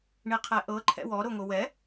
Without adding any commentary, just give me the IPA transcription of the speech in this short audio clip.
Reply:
ɳiqʰɛʔɤ ǃʰɛ̰wɔ ɾoŋowɛ

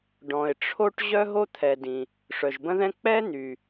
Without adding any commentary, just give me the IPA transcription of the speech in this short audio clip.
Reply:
ɖɔ̃˩ɪ̯ʈ͡ʂʰo˥ʈ ʑœ˥ɦo˥t̪ʰɛ˩ dĩ˩ | ʂœ˩ʒbə̃˥ðɛ̃˥ k͡pɛ˥n̪y˩

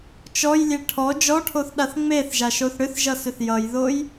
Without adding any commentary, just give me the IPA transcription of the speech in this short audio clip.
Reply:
t͡ʃɔjlʲe ʈʰɔ d͡ʒɔʈʰoθɗaθ ŋ͡meθʒaʃoθ ɽʏθʒʌsʏθ jʌjðoj

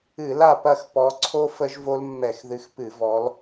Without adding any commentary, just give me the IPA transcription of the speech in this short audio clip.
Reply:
ɨ˧˩˧la˦˨pɐ˦˨x pɔ˨˦ǀʰo˦˥ fə˦˥ʒvo˦˥l mːɛ˧˩˧xðɨ˨˦xpɨ˧˩˧ vɔ˨˦l

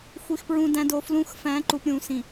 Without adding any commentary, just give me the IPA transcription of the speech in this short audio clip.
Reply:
xʷi˨xpɹũ˨ dæ̃˨do˨ flũ˨˦xfæ̃˨˦ ǃu˨pɾʲũ˨ sĩ˨

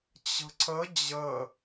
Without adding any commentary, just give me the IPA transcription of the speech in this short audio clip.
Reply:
t͡ɕə̤ǀə d͡ʑə

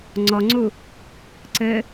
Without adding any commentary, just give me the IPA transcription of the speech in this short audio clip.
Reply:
ŋ͡ǀɔŋ͡ǀu | ǀɘ

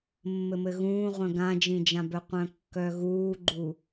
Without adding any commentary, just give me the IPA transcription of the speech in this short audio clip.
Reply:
mːɘmɘɣũːʁʷœ̃ ɡãd͡ʒĩd͡ʒãbœ qʷœ̃kːœɣuːɡ͡ǃu

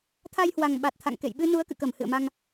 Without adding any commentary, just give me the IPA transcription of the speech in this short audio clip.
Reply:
t̪ʰa˧jhwa˨˩ŋ ɓa˨˩t̚t̪ʰa̰˧˨ŋkḛ˧˨j ɓɨ˧nu˨˦ə̯kɨ̰˧˨kə˧˩m hɨ̰˧˨ə̯ma˧ŋ

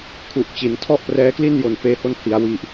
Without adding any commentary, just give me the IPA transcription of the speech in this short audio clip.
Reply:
kʰu˨˩ʔ t͡ɕi˩˦n tʰɔ˥˩ʔprɛː˦˥kli˥˩n jo˨˩nfeː˧ho˦˥n hi˩˦a̯ wi˨˩ʔ

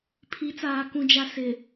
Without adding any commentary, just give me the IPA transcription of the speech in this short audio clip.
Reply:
pʰi˨˦t͡saː˨ kũ˨d͡ʒa˨ sɪ˨

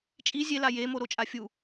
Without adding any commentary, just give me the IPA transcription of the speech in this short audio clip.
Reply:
t͡ʃʼi zʲela jemo ɾot͡ʃʼafʲu

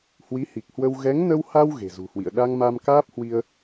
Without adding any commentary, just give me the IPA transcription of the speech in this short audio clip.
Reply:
hwi˨˦hi˨˩k̚hwə˧w ɣɛ˨˦ŋnə˧wha˧w ɣe̤˨˩zṳ˨˩hwḭ˧˨ə̯ ɗa˧ŋma˧mkaː˦˥p̚hwi˧ə̯

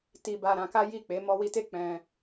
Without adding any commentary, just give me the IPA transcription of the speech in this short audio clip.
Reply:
ti˧ba˧ɾã˧ka˦ ji˦˨k͡pe˨˦ mɔ˧wi˧te˦ k͡pɛ̃˧

